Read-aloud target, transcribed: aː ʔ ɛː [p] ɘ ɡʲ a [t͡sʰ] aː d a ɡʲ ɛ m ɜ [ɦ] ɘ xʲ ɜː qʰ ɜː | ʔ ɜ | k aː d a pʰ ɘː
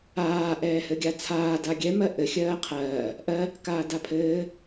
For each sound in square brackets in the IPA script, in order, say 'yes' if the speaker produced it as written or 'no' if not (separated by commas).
no, yes, no